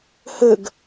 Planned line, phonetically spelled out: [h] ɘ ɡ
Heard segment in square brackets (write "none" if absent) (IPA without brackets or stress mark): h